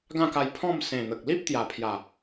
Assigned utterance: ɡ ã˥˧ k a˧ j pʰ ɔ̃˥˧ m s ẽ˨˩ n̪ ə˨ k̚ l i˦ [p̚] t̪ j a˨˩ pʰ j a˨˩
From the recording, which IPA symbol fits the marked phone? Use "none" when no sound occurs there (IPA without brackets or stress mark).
p̚